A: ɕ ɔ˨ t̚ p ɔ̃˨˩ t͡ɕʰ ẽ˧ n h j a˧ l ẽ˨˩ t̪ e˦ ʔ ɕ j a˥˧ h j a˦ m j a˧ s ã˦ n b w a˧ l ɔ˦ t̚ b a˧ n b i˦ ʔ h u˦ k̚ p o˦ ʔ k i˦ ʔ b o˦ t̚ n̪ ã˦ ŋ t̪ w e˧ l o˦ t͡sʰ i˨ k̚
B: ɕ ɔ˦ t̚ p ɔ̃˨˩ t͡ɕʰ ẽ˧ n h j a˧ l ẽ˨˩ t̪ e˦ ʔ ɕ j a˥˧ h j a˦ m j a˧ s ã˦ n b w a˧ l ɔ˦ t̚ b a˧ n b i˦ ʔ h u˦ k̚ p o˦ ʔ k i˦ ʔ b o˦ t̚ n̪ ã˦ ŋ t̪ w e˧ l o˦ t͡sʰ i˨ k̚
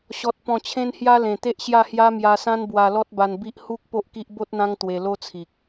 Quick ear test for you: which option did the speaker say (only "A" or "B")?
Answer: A